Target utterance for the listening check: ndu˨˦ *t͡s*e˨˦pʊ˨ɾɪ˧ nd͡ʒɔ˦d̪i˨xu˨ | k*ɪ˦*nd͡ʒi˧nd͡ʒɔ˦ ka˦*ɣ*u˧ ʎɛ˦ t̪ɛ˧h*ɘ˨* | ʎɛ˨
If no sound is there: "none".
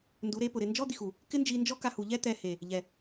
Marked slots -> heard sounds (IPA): ɾ, ɪ˦, h, e˨

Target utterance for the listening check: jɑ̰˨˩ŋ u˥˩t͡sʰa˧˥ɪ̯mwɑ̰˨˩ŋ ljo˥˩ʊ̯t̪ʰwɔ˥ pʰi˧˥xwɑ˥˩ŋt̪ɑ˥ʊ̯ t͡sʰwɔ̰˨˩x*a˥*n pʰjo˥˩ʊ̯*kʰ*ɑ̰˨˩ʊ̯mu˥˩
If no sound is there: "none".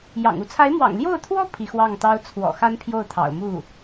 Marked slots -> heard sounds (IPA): a˥, t̪ʰ

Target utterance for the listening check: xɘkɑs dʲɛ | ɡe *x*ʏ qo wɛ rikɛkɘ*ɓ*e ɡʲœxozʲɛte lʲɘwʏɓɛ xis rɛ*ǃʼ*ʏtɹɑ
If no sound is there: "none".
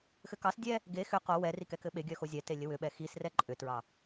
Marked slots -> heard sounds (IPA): x, ɓ, ǃʼ

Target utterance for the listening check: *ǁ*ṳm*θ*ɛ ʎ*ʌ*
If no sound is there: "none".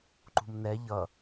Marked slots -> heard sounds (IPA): ǃ, n, ʌ

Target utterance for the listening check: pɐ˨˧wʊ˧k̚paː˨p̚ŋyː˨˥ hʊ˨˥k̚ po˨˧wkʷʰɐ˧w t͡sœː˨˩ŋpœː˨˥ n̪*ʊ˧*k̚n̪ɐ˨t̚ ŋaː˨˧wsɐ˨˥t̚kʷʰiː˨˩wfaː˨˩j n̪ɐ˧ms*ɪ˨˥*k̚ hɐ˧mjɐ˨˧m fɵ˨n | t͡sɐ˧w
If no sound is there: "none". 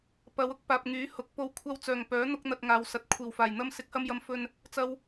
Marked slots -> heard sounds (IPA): ʊ˧, ɪ˨˥

